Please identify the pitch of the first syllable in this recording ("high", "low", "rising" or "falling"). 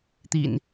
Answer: low